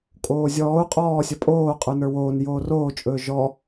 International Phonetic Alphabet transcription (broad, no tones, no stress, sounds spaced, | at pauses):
kʼ oː zʲ ɔː u̯ qʼ ɔː sʲ ʌ pʼ oː qʼ ə˞ n ə˞ w oː n j oː r oː t͡ʃʼ ɵː ʒ ɔ